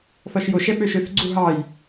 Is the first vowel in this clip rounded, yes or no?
yes